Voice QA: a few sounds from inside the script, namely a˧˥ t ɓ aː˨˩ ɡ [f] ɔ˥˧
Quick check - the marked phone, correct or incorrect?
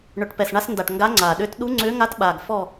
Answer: correct